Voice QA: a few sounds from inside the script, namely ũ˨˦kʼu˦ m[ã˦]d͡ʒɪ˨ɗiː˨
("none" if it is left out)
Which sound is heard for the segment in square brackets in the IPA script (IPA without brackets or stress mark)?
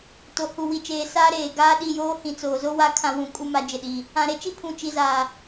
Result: a˦